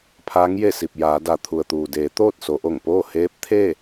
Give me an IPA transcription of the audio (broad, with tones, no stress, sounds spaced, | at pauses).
pʰ aː˧˥ ŋ j e˥˨ s i˧˩ p̚ j aː˩˧ d a˩ t̪ʰ u˩ ə̯ t̪ uː˩ d eː˩˧ t̪ oː˥˨ t̚ s o˩˧ ʔ o˧˩ ŋ p oː˥˨ h eː˧˥ p̚ t̪ʰ e˥˨